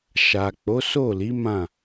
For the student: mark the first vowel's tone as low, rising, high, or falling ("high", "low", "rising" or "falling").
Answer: low